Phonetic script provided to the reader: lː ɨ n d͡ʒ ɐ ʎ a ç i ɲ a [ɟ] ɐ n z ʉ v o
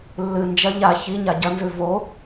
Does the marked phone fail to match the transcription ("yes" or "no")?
no